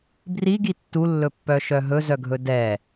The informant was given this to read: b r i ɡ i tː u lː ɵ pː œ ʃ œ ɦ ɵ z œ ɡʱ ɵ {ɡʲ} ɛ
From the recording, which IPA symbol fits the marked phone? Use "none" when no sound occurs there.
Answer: d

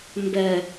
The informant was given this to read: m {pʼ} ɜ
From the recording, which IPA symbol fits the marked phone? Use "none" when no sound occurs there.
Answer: b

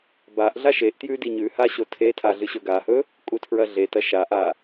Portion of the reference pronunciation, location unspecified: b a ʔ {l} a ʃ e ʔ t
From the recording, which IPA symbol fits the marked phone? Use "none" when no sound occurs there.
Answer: ɮ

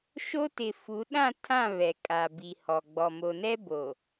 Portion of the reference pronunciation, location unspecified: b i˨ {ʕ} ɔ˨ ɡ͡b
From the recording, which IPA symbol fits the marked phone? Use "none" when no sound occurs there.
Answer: h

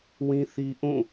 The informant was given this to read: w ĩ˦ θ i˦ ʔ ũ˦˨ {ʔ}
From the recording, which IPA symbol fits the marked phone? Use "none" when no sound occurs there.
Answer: none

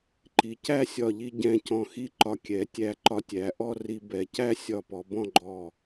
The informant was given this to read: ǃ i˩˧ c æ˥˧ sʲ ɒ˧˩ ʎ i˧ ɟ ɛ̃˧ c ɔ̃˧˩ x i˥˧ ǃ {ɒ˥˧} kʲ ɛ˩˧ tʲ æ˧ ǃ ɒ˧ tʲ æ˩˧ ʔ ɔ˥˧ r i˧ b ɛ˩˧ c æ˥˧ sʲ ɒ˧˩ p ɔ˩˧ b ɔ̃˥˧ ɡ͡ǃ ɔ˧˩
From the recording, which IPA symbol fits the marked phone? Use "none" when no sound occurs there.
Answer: ɒ˧˩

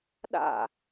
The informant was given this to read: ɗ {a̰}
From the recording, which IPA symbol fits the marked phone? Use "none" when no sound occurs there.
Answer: a̰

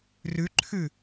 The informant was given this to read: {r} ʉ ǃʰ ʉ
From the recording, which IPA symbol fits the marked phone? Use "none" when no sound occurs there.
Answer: r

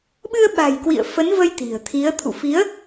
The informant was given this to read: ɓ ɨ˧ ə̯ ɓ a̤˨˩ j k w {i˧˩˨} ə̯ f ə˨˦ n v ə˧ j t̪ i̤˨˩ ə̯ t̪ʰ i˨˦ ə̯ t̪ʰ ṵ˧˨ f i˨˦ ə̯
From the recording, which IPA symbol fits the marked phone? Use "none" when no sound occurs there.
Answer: ḭ˧˨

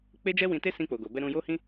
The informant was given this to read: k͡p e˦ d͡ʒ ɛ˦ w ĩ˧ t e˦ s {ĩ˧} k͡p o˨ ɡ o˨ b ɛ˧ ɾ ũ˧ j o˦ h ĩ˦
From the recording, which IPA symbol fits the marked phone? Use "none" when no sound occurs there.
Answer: ĩ˧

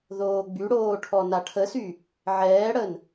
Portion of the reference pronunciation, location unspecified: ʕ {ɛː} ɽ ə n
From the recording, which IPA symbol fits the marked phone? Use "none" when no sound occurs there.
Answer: ɛː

